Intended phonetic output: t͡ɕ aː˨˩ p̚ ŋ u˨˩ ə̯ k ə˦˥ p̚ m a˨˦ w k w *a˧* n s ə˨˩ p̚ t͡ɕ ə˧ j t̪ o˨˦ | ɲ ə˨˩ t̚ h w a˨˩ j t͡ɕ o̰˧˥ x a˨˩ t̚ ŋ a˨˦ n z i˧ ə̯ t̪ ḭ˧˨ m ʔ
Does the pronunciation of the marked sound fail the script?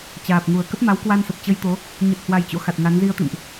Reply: no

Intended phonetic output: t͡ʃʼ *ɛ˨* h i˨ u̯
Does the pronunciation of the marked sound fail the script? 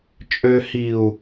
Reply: yes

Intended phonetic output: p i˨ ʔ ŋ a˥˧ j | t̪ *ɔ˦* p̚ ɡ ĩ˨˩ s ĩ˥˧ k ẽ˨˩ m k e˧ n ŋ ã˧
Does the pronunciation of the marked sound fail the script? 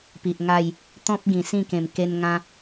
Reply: yes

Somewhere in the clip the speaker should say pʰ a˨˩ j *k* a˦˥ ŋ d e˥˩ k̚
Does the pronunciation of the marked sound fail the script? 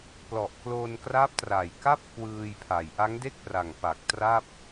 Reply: yes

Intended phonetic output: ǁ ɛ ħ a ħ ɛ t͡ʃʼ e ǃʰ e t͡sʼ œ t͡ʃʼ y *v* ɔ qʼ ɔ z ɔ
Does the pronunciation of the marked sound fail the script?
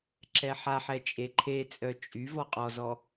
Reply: no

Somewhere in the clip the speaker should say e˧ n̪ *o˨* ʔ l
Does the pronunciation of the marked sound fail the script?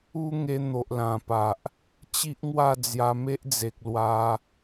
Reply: no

